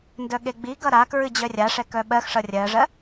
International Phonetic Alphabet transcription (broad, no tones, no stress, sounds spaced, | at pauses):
n d œ ɠ e ɡ͡b i ɡ ʌ ɾ a k ɹ ɨ d͡ʑ œ rʲ a ʂ ɛ k œ ɓ ɜ x ʂ ʌ rʲ ɜ ʐ ɜ